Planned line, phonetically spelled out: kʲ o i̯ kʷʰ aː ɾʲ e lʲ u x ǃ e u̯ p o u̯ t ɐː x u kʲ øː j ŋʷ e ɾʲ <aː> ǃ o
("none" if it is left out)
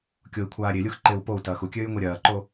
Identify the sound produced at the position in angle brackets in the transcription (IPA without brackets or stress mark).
ɐː